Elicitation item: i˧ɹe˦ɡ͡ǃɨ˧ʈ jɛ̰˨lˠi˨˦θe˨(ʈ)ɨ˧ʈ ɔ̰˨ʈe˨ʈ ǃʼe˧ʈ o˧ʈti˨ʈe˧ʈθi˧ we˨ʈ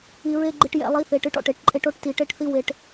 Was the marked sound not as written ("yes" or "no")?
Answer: no